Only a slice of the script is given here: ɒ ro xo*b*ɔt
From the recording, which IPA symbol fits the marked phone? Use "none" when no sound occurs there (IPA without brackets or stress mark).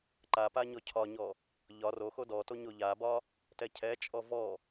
d